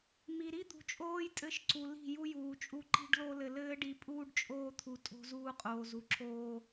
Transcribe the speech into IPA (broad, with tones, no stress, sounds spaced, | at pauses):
m i˨ ɾ i˦ d̪ ṳ˨ t͡ʃʼ oː˦ j tʼ ɘ˦ ʃ ǀ u˨ l i̤˦˨ j u˦ j uː˨ t͡ʃʼ u˦ ǃ i̤˦ ɖ l o˦ l ɘ˨ l ɘː˦ ɖ i˨˦ pʼ uː˦ ɖ t͡ʃʼ oː˦ t̪ʰ u˨ tʼ o̤˦ z uː˦ qʼ oː˨ z u˨ ǁʰ oː˦